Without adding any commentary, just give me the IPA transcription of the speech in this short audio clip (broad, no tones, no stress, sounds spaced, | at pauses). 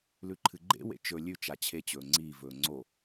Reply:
l ʉ ǃʰ ɨ ɡ͡ǃ ḛ w ḛ t͡ʃ ɵ lʲ ʉ t͡ʃ a t͡ɕʰ e t͡ɕ ɵː ŋ͡ǀ iː v ɵː ŋ͡ǀ o